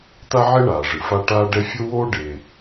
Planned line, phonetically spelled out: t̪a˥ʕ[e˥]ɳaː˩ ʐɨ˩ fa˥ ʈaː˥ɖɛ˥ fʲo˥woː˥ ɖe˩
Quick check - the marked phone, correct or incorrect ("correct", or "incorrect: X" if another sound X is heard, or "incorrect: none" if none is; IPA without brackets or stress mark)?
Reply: correct